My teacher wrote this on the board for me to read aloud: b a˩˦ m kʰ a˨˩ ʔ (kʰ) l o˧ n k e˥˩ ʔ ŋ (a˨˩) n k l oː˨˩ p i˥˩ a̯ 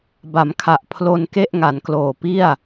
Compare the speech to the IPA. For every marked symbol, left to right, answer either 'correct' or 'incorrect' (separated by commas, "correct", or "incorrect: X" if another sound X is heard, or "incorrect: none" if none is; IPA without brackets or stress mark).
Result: incorrect: pʰ, incorrect: a˩˦